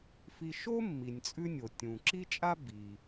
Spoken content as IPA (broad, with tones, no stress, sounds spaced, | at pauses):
f i˧ ʃ o˥ mː i˩ nʲ t͡sʼ ʉ˧ nʲ o˩ tʲ ũ˩ ǁ i˥ t͡ʃʼ a˥ b i˩